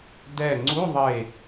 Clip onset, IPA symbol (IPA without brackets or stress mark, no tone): d